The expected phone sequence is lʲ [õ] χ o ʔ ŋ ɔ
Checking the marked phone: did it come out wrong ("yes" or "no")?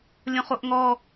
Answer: no